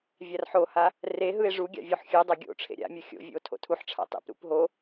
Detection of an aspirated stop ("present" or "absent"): present